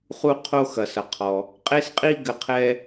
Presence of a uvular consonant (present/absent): present